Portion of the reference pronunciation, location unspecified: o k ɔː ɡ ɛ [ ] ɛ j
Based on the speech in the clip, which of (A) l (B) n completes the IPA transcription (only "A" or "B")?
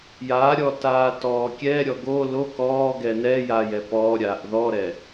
B